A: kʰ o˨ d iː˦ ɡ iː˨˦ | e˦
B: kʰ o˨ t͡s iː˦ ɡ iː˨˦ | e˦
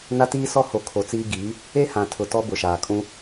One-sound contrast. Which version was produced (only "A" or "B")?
B